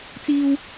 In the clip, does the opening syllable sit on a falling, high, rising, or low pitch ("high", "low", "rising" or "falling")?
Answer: high